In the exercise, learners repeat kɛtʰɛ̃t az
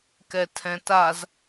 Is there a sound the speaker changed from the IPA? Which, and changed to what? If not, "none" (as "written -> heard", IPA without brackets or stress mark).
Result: none